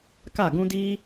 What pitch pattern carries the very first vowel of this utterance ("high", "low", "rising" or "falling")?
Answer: falling